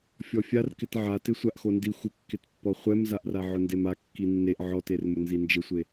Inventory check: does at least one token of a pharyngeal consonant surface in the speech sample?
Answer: yes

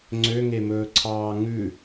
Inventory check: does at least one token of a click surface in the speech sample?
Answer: yes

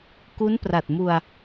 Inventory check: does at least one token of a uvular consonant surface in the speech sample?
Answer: no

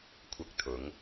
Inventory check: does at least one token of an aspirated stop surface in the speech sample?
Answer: yes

